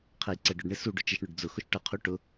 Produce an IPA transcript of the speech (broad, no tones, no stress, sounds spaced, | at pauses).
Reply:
qʰ ɛ j ǀ ɛ ɖ ʊ ɖ ɳ ɪ s u ɖ ʊ t͡ʃ ɪ ʃ ɳ ʊ ɖ d͡z ʊ x ʊ ʃ ʈ ʌ qʰ u ʈ ʊ